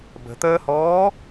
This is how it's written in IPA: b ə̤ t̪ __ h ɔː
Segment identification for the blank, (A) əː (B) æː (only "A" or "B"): A